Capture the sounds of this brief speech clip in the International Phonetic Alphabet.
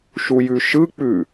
ʃujʉʃɯk͡pʉ

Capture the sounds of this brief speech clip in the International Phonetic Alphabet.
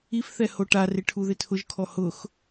ifθɛ hoʈarɪ ʈʰuðɪtʰʊʒkʰɔ hʊx

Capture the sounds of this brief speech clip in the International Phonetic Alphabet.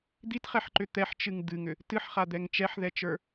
d̪itχɛħǃʏ t̪ɛħt͡ʃɨŋ d̪ɨŋʏ | tɨħχad̪ɛŋ t͡ʃɛħðɛt͡ʃə˞

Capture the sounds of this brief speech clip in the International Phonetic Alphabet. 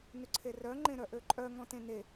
nøǀʰerœ ŋ͡ǃẽɾœʔøǃʼœ ŋɔ̃tẽne

